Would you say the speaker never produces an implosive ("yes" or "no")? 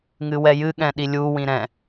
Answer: no